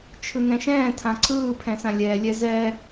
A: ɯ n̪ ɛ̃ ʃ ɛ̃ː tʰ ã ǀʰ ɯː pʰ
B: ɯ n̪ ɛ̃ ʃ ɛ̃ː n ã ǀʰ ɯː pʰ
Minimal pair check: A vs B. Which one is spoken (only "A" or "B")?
A